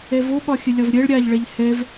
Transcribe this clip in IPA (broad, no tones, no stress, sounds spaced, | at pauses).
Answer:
ɛ v o ɓ ɒ xʲ ə lʲ ɒ v ɾʲ ɛ ɭ ɾʲ a ʎ ɭ ɛ ʎ h ɛ v